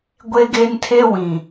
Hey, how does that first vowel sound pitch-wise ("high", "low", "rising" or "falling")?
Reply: high